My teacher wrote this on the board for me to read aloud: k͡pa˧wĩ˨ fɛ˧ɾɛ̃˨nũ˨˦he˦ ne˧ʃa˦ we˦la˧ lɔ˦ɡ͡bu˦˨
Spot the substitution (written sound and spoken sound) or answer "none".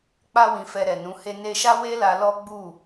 ɛ̃˨ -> ɛ˨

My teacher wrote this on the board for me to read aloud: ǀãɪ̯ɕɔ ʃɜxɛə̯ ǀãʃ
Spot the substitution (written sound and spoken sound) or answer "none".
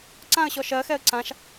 ɪ̯ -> ə̯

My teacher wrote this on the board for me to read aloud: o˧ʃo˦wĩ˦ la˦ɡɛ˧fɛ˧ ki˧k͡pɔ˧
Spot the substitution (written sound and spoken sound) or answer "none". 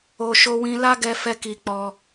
none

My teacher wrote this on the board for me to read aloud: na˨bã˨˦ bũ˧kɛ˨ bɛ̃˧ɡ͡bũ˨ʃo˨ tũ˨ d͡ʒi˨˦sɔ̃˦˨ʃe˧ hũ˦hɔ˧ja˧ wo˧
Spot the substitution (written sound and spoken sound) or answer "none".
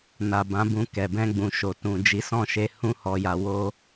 none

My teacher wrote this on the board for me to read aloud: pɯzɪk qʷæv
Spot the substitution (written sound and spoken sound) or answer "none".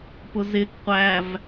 ɯ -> ʊ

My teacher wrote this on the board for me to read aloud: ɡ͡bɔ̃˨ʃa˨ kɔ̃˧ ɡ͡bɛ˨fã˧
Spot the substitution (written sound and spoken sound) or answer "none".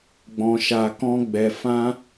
none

